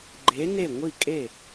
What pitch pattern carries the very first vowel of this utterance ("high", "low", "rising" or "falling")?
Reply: rising